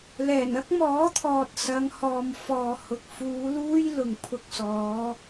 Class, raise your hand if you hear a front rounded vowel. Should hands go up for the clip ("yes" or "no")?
no